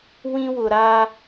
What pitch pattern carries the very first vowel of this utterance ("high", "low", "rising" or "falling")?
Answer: high